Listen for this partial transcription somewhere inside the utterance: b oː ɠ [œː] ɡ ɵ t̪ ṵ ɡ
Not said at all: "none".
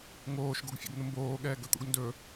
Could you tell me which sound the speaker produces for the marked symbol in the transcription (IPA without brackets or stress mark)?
ɛː